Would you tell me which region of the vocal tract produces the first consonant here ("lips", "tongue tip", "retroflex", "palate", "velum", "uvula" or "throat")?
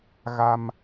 velum